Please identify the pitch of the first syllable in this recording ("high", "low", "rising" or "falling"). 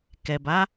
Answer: low